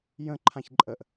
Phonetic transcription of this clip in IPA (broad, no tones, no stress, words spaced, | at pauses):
jə̃ ǃʰãçǃʼəʔ